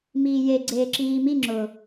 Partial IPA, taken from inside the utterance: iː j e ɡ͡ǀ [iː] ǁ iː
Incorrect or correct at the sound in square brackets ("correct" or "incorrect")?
incorrect